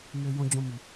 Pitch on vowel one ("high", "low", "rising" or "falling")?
low